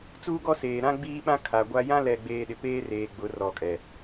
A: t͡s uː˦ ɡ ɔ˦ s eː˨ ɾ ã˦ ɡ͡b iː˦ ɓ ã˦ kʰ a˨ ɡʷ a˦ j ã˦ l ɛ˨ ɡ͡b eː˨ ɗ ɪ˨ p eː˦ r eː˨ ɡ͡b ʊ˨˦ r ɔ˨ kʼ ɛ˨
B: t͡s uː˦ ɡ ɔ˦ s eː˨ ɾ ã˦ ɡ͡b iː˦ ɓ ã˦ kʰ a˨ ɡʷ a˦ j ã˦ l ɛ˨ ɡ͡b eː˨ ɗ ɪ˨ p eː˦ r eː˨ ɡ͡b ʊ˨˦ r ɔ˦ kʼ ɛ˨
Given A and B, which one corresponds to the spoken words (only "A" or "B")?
A